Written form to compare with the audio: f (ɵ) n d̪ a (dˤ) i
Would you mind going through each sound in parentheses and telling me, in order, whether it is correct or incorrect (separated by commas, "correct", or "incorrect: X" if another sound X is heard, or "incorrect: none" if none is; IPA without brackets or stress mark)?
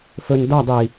correct, correct